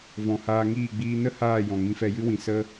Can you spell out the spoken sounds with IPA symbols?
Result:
v ɔ̃˨ h aː˧ ŋ iː˦˨ ɡ͡b iː˧ n ə˦ h aː˦˨ j ɔ̃˨ ŋ ĩ˧ f ɛ˧ j ɨ˦ w ĩ˨ s ə˦

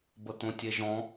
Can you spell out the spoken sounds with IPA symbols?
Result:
b ə t̪ õ tʲ e ʒ ɔ̃

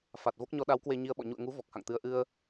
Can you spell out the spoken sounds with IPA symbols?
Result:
f a˨˩ t̚ v o˦˥ k̚ ɲ ɔ˨˦ ɗ a˨˦ w k w e˧ ɲ i˧ ə̯ ɓ ɔ̰˧˨ ɲ ṵ˧˨ ə̯ ŋ u˨˦ v ɔ˨˩ k̚ h a̰˧˨ ŋ t̪ ɨ˧ ə̯ ʔ ɨ˧ ə̯

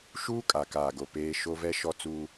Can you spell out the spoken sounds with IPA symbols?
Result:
ʃ uː˦ kʼ a˨ k aː˨ ɡ o˨ p eː˦ ʃ o˦ v ɛ˦ ʃ ɔ˦ t͡s uː˦

